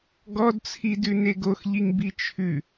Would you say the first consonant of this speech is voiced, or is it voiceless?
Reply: voiced